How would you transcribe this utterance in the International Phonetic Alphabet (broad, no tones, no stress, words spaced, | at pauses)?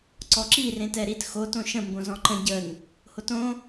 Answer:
ǀɔǁi rẽtɛɾit xo tõʃə̃ mbõzɔ̃ǃə̃ ɟən | hotõ